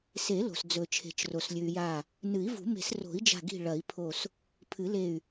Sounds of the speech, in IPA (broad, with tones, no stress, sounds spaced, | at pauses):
s e˨˩˦ l o̤˩ s d͡z ɵ˩ t͡ʃʰ e̤˩ t͡ʃ r o˩ s lʲ ʉ˩ y̯ j a˧˩ | n ɨ˨˩˦ i̯ v ṳ˨˩˦ m e̤˨˩˦ s r o̤˨˩˦ i̯ d͡ʒ a̤˧˩ ɡ i̤˧˩ ɭ ɐ˨˩˦ i̯ pʰ o˧˩ s | pʰ ɨ˨˩˦ l e˧˩ y̯